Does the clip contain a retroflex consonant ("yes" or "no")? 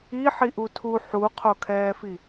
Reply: no